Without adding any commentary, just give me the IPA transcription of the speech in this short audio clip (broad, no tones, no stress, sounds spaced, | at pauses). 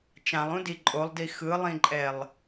t͡ʃ ã lˠ ũ d i ǃʼ o lˠ d i x ɯ lˠ ĩ ǃʼ ɛ lˠ